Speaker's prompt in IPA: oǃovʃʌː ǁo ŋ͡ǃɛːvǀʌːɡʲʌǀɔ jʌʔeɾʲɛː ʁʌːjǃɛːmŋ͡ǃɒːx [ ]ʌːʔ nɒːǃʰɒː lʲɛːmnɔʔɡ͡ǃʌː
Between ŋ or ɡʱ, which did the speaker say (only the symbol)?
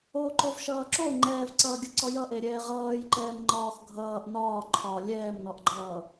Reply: ɡʱ